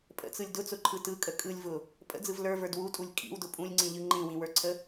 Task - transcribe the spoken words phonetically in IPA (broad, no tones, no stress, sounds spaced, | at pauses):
pʼ ə̰ t͡s ɯ lʲ d ʊ t͡s ʊ ǃʰ ɯ t ɯ kʼ ə kʼ ɯ lʲ v ʊ | pʼ ə̰ d͡z ɯ v l ə˞ v ə˞ d w u tʼ u lʲ kʼ ḭ w d ʊ pʼ ũ lʲ ŋ͡ǀ ĩ ʎ ɯ ŋ͡ǃ ĩ w ĩ w ə˞ ǀʰ ə